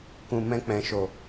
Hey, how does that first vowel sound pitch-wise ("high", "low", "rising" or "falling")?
low